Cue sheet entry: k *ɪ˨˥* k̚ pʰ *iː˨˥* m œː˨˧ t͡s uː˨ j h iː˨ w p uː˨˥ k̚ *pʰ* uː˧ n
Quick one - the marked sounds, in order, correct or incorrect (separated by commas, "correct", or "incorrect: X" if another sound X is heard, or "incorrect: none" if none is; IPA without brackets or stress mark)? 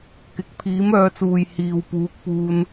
incorrect: ɪ˨, correct, incorrect: p